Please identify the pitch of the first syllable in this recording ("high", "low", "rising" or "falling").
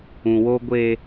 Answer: low